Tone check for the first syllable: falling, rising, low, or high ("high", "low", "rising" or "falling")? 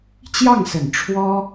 falling